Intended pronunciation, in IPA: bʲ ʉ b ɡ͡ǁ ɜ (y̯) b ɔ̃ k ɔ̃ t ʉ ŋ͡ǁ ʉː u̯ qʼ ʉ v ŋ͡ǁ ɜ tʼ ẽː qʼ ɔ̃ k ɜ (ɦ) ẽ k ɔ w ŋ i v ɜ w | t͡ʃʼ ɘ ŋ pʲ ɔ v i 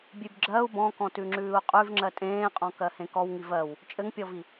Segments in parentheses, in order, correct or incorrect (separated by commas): incorrect, incorrect